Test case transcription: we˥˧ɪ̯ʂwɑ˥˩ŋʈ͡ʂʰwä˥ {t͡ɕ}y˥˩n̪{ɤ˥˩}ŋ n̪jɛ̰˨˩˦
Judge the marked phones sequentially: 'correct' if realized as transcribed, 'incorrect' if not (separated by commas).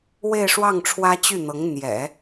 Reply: correct, incorrect